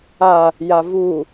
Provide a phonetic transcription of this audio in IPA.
a | j a v u

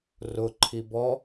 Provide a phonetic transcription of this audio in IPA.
r ʊ ǃʰ i b ɔ

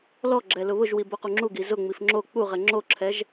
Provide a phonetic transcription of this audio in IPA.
l ɔ ɡ͡ǁ ɛ l ʊ β ʊ ʒ w i b o q u ŋ͡ǁ u ɡ i z ʊ ŋ͡m i f ŋ͡ǁ o k͡p u ʁ ɛ ŋ͡ǁ o ǁʰ ɛ ʒ

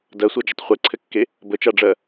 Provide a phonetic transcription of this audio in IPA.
d ɜ sʷ ɜ d͡ʒ ə tˤ χʷ e ǀʰ ɘ kː e | b ə t͡ʃ a ɖ͡ʐ ɜ

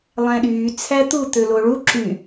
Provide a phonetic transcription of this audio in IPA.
lˠ æ̃ ɗ yː t͡sʰ æ t̪ u t̪ ø l o ɭ u ǁ y

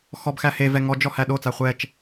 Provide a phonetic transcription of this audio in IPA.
x ɔ b x æ h e v ɛ ŋ ɔ d͡ʒ ɔ h æ ɗ o t͡s a χʷ ɛ t͡ʃ

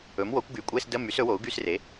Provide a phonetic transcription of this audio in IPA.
ɵ˩˥ m w o˩˥ kʷ ɡ y˩˥ kʷʼ e˧˥˧ s d ə˧˥˧ m y˩˥ s ɵ˩˥ w o˩˥ u̯ ɡ y˧˥˧ s r e˩˥

